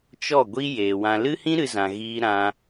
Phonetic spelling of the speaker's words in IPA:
t͡ʃɔ˦˨ɡʷi˦ jeː˨wã˧ lɨ˦hĩ˦ ɾɨ˧zã˨ ɣiː˧ ɾã˧

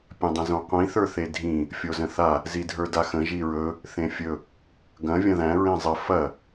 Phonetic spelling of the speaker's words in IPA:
pʲɐ̃dˤə̃zõqʷĩ θə˞θedʱĩ | fʲozə̃θa | zidʱə˞daxə̃ ʒiɹɵ | θẽfʲɵ | ɡɐ̃ vʲɐ̃ðæ̃ ɹẽzˤə fɐ

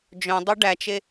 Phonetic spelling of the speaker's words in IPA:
d͡ʒœ̃dˤʉ ɖæt͡ʃe

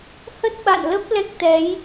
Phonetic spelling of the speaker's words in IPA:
hə˦˥t̚ɓa̰˧˨nlə˦˥p̚ lɛ˦˥k̚t̪ɛ˨˦j

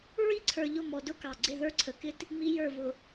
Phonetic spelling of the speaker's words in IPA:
ɹi˦ǀʰə˞˨ʎʊ˦˨ mɔ˨dʊ˦kɑ˨ ɡ͡ǀɪ˦˨ðə˞˦ǀʰə˨kɪ˦t | mi˦jə˞˦˨ vʊ˨

